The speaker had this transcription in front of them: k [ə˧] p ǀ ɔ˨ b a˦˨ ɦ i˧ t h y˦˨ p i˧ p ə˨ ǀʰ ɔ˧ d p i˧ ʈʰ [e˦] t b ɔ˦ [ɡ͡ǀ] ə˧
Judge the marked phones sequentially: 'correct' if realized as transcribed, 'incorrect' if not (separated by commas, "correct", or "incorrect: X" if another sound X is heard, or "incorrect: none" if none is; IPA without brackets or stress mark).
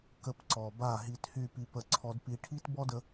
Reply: correct, incorrect: i˦, incorrect: d